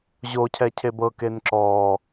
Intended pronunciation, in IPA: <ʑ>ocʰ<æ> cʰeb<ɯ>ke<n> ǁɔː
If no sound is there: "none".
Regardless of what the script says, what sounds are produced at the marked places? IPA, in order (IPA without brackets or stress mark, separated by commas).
ʑ, ɛ, ɤ, n